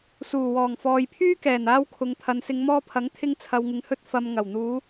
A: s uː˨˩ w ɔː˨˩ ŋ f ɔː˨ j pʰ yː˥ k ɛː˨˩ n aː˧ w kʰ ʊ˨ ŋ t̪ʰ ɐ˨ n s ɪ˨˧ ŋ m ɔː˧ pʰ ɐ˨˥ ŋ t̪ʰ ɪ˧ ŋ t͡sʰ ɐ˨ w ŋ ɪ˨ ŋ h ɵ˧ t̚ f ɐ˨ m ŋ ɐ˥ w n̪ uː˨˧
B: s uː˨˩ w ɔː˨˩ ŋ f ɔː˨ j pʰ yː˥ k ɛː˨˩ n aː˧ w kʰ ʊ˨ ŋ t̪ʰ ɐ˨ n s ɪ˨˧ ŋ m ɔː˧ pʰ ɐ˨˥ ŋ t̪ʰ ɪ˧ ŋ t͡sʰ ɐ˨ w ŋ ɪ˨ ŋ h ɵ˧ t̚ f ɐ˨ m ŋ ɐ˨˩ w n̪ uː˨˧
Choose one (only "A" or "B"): B